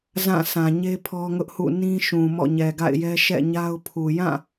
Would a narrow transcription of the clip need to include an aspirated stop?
yes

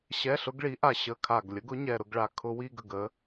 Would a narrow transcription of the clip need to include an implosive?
no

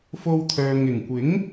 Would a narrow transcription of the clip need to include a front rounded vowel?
yes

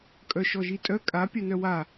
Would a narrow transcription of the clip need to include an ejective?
yes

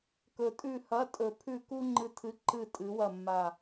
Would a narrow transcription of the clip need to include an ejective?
yes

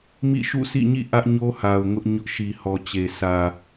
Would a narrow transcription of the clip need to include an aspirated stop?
no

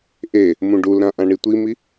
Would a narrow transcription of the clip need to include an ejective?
no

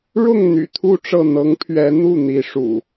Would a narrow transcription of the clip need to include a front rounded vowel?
yes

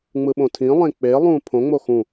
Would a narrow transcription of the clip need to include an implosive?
yes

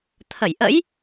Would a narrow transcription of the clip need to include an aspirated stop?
yes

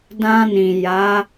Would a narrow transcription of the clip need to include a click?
no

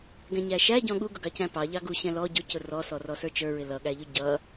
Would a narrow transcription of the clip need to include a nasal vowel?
yes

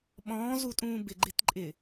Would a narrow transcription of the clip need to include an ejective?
yes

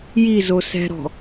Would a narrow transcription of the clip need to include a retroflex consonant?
no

